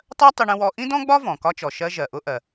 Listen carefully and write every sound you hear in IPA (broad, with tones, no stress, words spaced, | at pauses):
tˤɜ˥tˤʊ˧ɳə̃˧wɔ˧ ʔĩ˥dɔ̃˥ɡ͡bɒ˥vɔ̃˩ kɒ˧t͡ʃɔ˩ʃɜ˧ ʒɜ˩ʔʊ˧ʔɜ˩